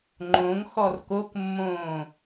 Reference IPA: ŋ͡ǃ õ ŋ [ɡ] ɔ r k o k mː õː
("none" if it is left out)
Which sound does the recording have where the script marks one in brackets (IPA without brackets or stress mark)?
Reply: x